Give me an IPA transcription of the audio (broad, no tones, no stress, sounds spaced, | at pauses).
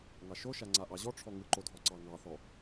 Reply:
ŋ ɑ ʃ o ʃ a ŋ͡ǀ a ʔ ɑ ʑ ɔ ʈ͡ʂʰ ɔ ŋ ɯ ǃ o dʱ ɔ ǀ ɑ ŋ ɑ θ ɔ